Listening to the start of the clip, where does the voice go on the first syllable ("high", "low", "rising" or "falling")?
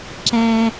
high